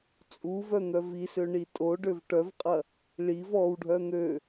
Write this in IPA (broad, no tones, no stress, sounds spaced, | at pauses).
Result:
t͡sʼ u v œ n̪ œ v i s ø ɳ i tʼ o ɖ ø v ʈ œ v qʼ ɐ | ɭ i v ɔ w ɖʱ œ n̪ ø